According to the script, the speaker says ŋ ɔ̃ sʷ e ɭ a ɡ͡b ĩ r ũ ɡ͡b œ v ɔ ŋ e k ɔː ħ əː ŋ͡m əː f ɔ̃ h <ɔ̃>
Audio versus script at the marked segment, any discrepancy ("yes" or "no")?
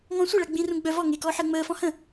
yes